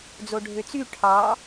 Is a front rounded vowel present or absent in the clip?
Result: present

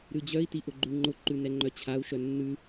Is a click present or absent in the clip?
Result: present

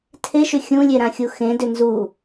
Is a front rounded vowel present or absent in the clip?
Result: present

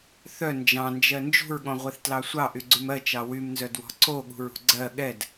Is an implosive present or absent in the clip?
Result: present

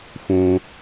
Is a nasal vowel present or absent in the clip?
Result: present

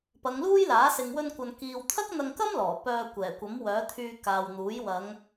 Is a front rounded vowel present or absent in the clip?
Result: present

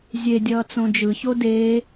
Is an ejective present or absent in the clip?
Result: absent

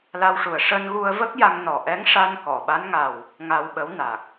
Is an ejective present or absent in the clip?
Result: absent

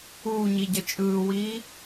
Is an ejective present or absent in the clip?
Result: present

